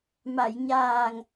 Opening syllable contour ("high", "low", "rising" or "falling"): low